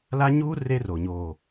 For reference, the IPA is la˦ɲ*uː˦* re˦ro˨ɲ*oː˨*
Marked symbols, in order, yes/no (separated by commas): yes, yes